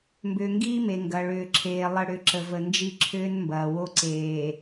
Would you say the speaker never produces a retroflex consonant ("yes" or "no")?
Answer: no